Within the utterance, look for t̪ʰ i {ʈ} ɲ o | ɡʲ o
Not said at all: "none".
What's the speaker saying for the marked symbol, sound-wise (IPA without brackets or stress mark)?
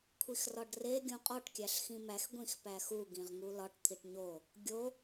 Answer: ʈ